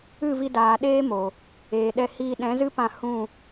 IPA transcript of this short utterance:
ɨ˦˨ v i˧ d aː˨ ɗ eː˦ m o˨ | eː˨ ɗ ɛ˧ h iː˧ ɗ ɛ̃˨˦ z ɨ˦ p ã˧ h ũ˦˨

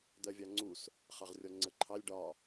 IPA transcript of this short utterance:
d̪ ɜ vʲ ɑ ŋ͡ǀ u s | χ ɑ ʁ rʲ ɔ ŋ͡ǀ ə ǃʰ ɑ lʲ ɖ ɒ

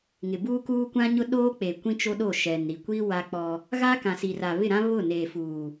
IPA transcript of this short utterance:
ŋ ɪ˨ b uː˦ k uː˦ kʷ ã˦ ɲ ʊ˦ ɗ oː˦ k͡p e˨ kʷ ĩ˦ t͡ʃ o˦ ɗ o˦˨ ʃ ɛ˨ n ɾ i˨ kʷ i˦ w a˦ k͡p ɔ˦ | ɣ a˦ k ã˨ s i˨ r a˨ β ɪ˦˨ ɾ ã˦ β ʊ˦˨ n eː˨ f uː˨

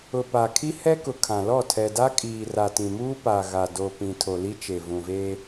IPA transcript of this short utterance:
ʊ˨ p a˨ kʰ i˦ h ɛ˦ k ʊ˨ kʰ ã˨ l ɔ˦˨ tʰ ɛ˨ d a˦ kʼ iː˨ r a˨ t ĩ˨ m uː˦ p a˨ ɣ a˨ d o˨ p ĩ˨ tʰ o˨ l i˦ t͡ʃ e˨ v ũ˨ v eː˦

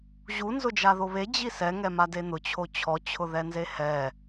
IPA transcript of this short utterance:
ʑ u n z ʊ d͡ʒ a ð o β e d͡ʑ i s ɛ ŋ ɛ m a d e n̪ ʊ t͡ɕʰ o t͡ɕʰ ɔ t͡ɕʰ ʊ ð ɛ n z e h ɛ

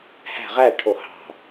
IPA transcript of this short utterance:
h æ̤ ʁ æ ʈʰ o h ɑ̤

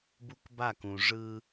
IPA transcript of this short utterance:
b u˦ k b a˦˨ k ũ˨ ʐ ɯ˦

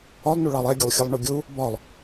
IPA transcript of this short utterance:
ɒ lˠ n u ɭ ɑ lˠ ɛ ɡʲ ʊ lˠ xʲ ʌ lˠ ɳ ʊ ɡʲ u | b ɒ lˠ

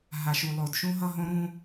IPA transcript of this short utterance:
ɦ a˨ ʃ u˨ lˠ o˨ d ʃ ũ˦ ɦ ʌ˦ ɦ õ˦ ɾ ũ˦

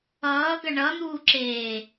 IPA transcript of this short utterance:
ʌː ɡ ʌ ɳ ʌ n̪ uː ǁ eː

